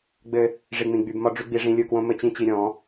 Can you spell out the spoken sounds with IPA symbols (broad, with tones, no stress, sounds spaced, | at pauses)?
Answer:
ɡ͡b ɘ˦ | ʐ i˨ ŋ͡m ĩ˨ ɡ͡b y˧ b m ɒ˦ ɖ͡ʐ y˦ ɡ͡b i˧ ʐ ĩ˧ lʲ ɯ˦˨ k w õ˦ m ɘ˧ t͡ɕ ĩ˦ t͡ɕ i˧ ɾʲ ɔ̃˨˦